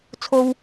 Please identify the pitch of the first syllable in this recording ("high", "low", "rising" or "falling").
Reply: high